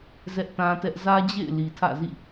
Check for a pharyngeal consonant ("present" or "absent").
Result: absent